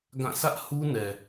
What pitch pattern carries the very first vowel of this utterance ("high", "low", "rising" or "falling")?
falling